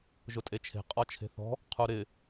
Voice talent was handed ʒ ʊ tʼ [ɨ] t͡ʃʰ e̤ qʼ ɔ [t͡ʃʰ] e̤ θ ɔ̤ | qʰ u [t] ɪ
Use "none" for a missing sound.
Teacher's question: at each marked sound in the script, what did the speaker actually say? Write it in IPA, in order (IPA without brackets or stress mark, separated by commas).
e, t͡ʃʰ, ɾ